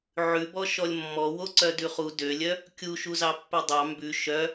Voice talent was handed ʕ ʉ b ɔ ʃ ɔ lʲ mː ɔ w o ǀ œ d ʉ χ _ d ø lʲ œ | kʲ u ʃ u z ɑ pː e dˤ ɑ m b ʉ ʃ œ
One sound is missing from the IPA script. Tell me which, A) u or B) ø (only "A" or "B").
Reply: A